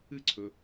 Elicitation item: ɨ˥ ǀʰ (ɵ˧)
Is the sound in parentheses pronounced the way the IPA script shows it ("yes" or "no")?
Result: yes